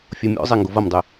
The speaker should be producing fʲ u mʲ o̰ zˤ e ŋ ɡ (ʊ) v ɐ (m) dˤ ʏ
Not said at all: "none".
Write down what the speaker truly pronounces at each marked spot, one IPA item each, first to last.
ʊ, m

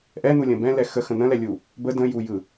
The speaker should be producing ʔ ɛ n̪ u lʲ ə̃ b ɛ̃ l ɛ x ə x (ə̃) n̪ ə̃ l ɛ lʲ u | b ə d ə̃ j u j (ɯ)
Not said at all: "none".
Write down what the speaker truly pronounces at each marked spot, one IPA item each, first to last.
ə̃, ɯ

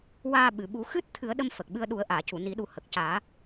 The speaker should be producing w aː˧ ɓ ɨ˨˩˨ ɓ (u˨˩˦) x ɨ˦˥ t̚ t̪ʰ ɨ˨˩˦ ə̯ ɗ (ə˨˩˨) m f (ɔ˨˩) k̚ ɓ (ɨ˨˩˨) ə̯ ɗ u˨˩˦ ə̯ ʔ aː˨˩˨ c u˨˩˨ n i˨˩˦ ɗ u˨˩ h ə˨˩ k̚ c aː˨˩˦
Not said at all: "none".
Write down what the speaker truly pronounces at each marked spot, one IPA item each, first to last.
u˨˩˦, ə˧, ə˨˩, ɨ˧

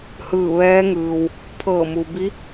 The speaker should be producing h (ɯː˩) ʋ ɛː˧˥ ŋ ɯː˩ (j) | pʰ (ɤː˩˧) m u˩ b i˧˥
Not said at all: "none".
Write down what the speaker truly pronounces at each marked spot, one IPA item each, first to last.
ɯː˧˩, w, ɤː˧˩

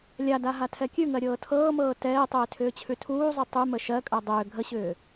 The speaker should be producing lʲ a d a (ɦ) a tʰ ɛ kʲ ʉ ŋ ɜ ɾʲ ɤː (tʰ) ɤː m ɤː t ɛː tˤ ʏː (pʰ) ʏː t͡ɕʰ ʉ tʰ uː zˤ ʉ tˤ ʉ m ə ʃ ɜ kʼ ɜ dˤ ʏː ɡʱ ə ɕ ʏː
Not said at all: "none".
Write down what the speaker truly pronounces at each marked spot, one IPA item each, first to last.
ɦ, tʰ, tʰ

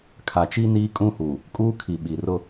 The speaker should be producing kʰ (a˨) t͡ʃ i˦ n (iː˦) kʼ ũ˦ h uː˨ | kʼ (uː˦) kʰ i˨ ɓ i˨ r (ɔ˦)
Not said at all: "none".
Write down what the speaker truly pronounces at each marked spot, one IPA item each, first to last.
a˨, iː˦, uː˦, ʊ˦

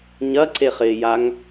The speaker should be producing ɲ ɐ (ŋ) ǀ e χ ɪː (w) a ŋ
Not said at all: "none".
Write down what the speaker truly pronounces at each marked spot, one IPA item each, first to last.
none, j

